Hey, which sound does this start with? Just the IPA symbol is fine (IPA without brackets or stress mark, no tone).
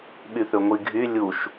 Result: ɓ